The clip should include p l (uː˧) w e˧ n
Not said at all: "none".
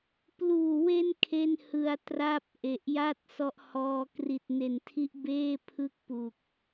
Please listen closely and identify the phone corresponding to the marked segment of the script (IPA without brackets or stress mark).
uː˨˩